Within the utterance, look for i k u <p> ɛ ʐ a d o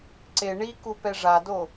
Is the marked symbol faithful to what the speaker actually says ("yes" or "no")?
yes